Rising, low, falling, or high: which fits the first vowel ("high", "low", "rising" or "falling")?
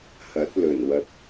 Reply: rising